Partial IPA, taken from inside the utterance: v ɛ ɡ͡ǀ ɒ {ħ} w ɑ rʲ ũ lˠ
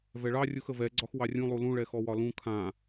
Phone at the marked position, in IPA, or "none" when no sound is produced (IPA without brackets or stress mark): x